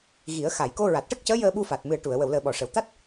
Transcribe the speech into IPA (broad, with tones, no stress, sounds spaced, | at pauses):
ɣ i˨˩˦ ə̯ x a˨˩˨ j k o˧ ɹ a˨˩ t̚ ʈ ə˦˥ k̚ c əː˧˥ j əː˧ ɓ u˧ f a˨˩ t̚ m ɨ˨˩ ə̯ ʈ u˨˩˨ ə̯ w ə˨˩˨ w l əː˨˩ ɓ ɔ˨˩˨ ʂ ə˨˩˨ w t̪ a˦˥ t̚